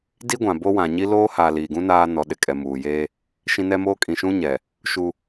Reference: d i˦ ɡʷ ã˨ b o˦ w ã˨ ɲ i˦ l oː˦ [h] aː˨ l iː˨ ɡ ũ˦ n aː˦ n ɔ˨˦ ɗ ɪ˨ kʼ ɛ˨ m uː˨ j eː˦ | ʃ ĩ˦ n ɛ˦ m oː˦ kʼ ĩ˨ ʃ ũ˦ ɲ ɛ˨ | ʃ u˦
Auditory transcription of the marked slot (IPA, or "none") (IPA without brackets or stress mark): h